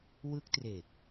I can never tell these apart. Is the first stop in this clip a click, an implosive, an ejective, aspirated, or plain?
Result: plain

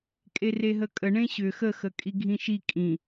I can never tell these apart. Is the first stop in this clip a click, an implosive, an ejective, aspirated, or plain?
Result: ejective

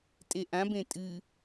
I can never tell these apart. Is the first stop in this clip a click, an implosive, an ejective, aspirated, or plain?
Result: ejective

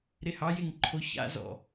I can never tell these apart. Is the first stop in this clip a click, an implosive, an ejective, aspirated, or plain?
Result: click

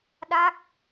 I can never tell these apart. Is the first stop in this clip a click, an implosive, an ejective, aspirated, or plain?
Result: implosive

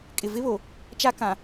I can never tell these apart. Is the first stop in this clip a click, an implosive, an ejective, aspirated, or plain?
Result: ejective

